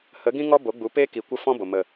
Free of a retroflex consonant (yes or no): yes